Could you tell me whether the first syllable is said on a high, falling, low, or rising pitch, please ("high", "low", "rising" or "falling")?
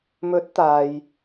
rising